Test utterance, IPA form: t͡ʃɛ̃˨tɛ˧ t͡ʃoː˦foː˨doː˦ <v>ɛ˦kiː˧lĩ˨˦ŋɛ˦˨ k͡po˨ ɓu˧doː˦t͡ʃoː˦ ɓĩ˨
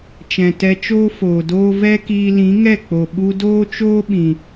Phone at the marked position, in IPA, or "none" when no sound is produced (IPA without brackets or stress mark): v